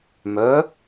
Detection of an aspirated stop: absent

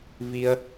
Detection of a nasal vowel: absent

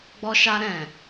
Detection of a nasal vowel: present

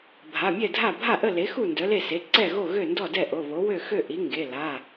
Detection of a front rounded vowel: present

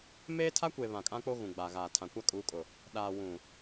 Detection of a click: absent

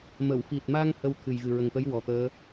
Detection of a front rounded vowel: absent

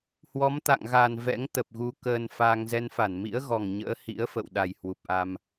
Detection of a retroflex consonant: absent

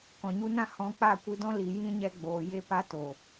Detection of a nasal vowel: present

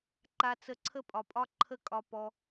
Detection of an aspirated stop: present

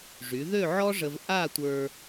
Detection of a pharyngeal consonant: present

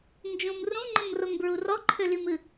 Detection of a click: present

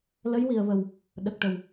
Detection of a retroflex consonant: present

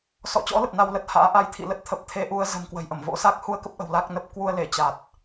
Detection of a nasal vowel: absent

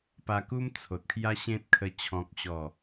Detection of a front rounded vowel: absent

